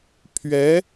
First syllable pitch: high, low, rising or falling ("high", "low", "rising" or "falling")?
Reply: rising